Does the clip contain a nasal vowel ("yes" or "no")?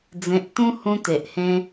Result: yes